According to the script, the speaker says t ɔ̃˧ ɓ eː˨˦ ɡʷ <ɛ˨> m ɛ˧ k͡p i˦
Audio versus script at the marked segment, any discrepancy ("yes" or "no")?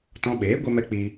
yes